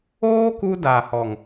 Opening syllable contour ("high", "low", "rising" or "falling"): high